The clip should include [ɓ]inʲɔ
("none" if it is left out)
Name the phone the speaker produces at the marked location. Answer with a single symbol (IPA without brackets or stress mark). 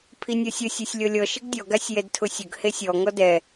pʰ